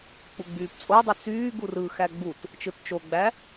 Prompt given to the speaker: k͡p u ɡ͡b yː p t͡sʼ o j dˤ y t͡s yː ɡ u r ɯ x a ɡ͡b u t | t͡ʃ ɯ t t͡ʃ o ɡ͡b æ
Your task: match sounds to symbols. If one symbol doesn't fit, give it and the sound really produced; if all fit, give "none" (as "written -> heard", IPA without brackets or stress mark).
a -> æ